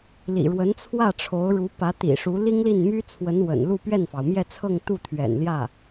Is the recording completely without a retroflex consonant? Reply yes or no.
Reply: no